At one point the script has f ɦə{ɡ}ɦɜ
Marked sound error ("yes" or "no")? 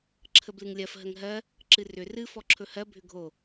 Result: yes